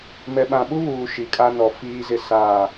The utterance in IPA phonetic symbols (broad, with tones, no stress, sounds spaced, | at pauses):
m ɛ˨ ɓ ã˨ ɓ u˦ β uː˨ ʃ i˨˦ kʼ a˦ n ɔ˨ f iː˦ z ɪ˦ s aː˦˨